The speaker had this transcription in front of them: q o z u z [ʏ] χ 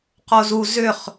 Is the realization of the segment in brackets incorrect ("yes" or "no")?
no